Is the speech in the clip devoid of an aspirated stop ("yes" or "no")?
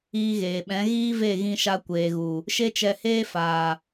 yes